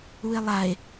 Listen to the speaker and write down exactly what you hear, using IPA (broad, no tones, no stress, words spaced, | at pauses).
ue̯lˠae̯